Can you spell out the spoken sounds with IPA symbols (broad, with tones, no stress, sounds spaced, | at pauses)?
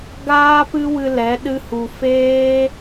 ɡ aː˦ p ɨ˦ w ɨ˧ l ɛ˨˦ ɗ ɨ˦ h u˧ f eː˦